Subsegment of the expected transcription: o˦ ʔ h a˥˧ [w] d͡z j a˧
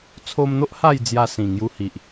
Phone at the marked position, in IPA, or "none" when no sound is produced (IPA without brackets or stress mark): j